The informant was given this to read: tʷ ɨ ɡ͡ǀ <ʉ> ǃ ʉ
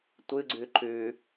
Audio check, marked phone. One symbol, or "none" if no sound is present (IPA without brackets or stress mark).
ʉ